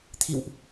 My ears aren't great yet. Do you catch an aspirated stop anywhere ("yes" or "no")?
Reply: yes